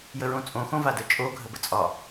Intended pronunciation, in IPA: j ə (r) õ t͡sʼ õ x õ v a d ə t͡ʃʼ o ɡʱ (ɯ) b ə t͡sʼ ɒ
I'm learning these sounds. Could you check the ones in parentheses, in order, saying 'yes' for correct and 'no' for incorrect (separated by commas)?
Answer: no, no